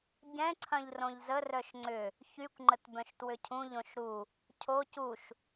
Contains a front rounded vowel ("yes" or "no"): yes